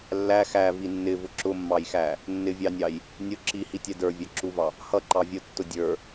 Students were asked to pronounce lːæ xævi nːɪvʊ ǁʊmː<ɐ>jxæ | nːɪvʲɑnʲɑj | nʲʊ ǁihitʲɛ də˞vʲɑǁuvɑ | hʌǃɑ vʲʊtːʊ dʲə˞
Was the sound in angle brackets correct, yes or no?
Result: no